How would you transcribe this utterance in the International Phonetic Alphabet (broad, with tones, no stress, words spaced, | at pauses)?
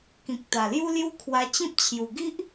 kĩ˨k̚t̪a˨˩lju˦lju˦ kʰwa˧t͡ɕĩ˦p̚t͡ɕʰju˨˩ ɡi˦ʔ